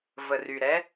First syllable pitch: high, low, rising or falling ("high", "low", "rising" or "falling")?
low